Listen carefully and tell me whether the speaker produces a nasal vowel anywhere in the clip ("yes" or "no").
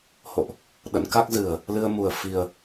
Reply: no